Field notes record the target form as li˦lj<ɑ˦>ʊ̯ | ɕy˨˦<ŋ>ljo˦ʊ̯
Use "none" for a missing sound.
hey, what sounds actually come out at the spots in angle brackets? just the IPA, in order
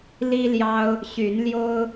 ɑ˦, n

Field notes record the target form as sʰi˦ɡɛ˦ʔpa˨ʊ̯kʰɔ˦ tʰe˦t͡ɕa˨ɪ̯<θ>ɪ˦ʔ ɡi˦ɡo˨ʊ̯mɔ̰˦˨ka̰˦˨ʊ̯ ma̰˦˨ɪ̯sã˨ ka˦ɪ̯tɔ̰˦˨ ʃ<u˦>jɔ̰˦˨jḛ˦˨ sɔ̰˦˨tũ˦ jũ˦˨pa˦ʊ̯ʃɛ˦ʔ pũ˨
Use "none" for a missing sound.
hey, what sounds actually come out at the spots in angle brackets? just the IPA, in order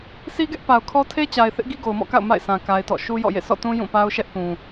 θ, u˦

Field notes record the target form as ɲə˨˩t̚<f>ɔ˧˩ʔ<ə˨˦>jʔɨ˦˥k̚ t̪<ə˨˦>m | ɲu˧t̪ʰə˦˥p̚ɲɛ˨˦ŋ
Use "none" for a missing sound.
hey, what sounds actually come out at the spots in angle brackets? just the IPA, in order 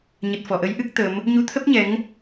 f, ə˨˦, ə˨˦

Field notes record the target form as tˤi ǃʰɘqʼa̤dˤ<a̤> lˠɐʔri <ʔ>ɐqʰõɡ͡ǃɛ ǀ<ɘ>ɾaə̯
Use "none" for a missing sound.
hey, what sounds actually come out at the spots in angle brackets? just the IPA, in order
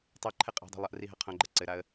a̤, ɦ, ɘ

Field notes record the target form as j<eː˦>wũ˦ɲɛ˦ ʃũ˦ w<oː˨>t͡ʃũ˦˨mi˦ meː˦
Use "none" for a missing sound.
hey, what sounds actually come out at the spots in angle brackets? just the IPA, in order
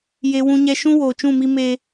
e˦, oː˨

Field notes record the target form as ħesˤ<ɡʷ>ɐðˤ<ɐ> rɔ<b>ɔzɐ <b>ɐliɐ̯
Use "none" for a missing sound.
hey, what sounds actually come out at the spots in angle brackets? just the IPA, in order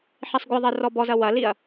ɡʷ, ɐ, b, w

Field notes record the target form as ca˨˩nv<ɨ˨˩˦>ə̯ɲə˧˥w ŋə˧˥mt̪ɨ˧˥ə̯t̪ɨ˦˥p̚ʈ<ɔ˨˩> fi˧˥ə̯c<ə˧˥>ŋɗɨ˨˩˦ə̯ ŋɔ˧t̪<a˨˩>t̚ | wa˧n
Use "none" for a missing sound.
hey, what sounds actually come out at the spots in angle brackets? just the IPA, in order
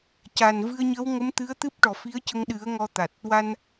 ɨ˧, ɔ˨˩, ə˧, a˨˩

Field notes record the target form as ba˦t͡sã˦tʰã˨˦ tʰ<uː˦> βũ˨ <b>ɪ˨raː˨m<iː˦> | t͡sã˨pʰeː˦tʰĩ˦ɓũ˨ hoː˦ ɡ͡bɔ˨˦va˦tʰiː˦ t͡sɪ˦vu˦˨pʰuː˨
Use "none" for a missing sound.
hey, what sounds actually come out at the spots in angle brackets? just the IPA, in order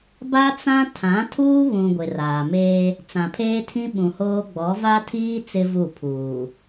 uː˦, ɡʷ, eː˦

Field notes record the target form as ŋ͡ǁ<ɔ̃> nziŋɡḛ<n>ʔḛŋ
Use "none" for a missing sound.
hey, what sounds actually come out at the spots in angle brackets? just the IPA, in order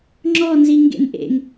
ɔ, n

